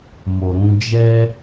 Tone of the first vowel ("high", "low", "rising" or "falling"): low